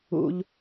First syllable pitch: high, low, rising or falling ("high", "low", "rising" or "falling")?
low